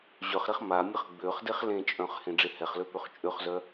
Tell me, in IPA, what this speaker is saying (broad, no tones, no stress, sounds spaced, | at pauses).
ʑ œ χ ɾ e χ m a mʲ ə χ ɡ͡b ø χ d e χ l ẽ t͡ʃʼ œ̃ χ h ẽ ɖ͡ʐ e h ɛ χ l ø p ø χ t͡ʃʼ ø χ z œ